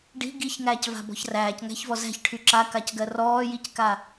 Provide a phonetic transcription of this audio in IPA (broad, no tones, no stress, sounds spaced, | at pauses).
ɖ i̤ ɡ i ç ŋ æː c v a̤ b ɔ̤ ç r æː c ŋ æ̤ ç v ɔ z æ̤ ç ʈʰ y ǁ a k a c ɡ ɜ r ɔː j i c k a